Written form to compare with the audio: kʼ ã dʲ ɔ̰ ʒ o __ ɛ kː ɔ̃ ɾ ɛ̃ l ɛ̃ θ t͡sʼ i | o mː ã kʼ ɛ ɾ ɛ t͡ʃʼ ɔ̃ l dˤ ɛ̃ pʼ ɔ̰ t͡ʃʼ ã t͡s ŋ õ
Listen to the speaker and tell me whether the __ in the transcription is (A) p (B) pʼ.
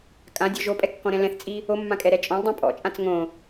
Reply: B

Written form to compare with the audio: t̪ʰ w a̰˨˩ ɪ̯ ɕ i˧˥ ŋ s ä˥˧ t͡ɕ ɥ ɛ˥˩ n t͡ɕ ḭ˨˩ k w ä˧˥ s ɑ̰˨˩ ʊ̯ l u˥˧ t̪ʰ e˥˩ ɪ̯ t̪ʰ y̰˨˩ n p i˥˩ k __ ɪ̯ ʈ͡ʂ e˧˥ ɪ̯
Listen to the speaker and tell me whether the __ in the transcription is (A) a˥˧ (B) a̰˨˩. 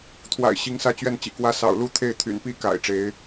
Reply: B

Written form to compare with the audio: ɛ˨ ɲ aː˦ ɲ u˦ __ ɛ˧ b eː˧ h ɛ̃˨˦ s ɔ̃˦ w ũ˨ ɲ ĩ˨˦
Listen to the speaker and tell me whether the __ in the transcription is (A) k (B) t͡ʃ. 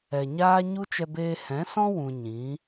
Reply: B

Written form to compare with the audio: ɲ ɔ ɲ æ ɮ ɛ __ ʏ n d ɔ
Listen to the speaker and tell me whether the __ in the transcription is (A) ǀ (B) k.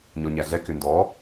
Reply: B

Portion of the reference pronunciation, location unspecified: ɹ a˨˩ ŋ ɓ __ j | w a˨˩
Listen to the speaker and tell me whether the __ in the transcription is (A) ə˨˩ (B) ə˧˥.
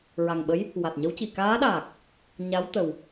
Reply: B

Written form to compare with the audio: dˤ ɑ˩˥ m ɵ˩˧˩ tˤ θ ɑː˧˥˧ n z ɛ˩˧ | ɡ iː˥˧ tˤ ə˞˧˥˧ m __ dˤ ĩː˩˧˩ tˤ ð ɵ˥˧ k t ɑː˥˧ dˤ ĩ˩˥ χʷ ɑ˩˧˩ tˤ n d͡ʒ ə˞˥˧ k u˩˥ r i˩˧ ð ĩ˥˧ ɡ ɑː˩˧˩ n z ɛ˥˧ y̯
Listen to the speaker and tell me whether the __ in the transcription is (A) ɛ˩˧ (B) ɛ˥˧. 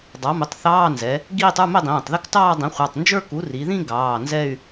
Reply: B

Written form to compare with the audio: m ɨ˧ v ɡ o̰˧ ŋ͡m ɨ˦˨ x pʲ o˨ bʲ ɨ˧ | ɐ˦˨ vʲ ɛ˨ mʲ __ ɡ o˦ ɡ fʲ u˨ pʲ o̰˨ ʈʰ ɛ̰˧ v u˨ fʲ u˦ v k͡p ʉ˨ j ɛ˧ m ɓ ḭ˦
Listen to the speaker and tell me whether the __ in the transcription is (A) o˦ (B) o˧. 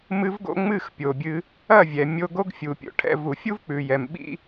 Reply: B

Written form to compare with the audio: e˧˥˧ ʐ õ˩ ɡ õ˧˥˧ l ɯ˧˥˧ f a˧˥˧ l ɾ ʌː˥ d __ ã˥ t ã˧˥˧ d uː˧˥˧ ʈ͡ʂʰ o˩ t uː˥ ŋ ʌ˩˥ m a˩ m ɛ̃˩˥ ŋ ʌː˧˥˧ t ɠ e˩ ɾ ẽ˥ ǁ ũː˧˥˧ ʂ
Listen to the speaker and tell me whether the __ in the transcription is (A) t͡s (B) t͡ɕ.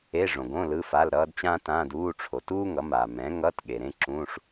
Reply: B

